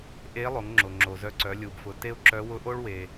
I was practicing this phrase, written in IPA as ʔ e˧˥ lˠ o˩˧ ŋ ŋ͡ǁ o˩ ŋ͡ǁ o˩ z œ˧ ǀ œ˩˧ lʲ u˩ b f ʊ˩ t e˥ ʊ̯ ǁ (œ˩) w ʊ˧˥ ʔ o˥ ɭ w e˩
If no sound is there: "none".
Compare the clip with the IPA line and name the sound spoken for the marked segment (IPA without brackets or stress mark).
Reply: œ˧˥